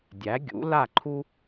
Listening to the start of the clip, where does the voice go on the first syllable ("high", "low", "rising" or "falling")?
rising